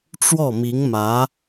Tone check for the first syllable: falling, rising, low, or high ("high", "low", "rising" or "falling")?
falling